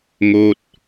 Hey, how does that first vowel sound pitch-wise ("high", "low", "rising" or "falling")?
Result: falling